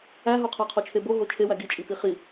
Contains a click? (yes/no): no